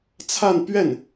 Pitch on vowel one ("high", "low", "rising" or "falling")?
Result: falling